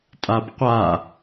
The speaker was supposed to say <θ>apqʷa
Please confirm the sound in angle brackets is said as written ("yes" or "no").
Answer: no